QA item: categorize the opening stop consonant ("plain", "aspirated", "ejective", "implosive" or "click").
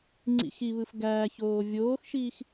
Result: click